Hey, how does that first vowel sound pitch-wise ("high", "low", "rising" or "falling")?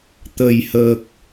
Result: low